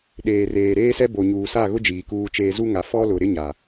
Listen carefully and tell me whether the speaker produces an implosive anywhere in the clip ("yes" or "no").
yes